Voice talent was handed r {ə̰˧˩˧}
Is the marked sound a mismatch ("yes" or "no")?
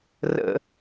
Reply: no